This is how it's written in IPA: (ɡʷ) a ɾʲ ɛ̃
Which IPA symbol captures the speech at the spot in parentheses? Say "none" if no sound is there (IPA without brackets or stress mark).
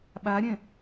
ɓ